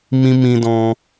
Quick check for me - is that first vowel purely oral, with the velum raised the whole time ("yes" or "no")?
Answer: no